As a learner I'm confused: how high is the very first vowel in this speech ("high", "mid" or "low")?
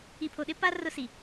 high